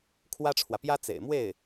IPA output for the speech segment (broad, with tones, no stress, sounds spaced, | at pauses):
kʰ w ä˥ ʈ͡ʂʰ w ä˨ p j ä˥ t͡s ḛ˨˩ ɪ̯ m w e˥˩ ɪ̯